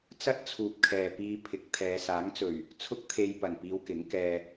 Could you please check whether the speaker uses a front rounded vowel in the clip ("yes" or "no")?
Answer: no